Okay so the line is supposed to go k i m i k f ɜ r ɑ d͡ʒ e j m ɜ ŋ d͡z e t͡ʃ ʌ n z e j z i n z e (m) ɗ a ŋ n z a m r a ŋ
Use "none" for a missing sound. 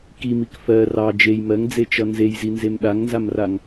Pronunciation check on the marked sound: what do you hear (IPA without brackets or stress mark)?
m